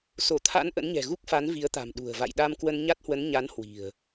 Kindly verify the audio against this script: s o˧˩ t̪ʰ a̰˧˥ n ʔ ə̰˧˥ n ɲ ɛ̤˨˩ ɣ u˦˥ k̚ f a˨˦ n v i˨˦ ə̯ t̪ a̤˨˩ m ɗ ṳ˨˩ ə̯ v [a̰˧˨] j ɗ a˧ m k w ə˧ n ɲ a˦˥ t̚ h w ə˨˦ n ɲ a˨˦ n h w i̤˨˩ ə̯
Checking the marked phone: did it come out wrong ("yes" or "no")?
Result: no